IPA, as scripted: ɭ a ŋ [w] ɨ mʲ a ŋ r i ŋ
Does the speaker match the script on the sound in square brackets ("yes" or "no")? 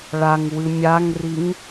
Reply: yes